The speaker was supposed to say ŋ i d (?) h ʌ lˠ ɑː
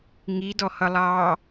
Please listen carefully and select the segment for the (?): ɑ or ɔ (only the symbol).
ɔ